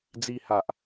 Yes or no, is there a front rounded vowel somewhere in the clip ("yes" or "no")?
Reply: no